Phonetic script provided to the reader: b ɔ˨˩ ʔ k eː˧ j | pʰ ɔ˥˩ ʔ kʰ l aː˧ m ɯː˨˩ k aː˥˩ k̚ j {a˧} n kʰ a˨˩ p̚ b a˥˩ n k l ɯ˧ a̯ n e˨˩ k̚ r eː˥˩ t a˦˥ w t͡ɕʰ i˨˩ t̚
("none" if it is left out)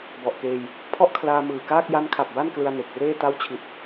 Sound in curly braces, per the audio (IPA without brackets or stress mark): a˦˥